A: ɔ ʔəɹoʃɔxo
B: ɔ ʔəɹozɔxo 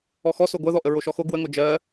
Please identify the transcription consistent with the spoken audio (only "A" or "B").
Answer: A